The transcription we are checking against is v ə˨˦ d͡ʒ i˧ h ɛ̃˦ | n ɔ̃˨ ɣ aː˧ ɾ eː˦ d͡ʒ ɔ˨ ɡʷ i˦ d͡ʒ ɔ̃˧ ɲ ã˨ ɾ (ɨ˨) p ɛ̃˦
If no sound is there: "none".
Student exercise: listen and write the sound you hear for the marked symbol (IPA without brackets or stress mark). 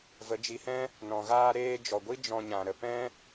ə˨